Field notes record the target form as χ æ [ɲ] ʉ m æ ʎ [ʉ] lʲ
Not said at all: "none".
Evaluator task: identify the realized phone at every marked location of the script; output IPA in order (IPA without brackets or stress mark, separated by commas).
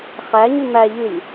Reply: ɲ, ʉ